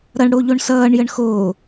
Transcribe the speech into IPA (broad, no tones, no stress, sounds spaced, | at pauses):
ɾ ʌ ɳ ɽ o ʎ o ɳ s ʌː ɳ j ə ɳ x oː